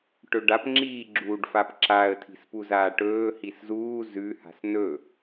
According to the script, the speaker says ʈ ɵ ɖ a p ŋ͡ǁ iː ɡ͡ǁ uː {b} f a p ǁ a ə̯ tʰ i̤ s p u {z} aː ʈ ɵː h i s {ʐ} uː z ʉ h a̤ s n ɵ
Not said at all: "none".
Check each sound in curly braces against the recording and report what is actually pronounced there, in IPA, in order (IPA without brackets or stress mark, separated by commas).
ɖ, z, z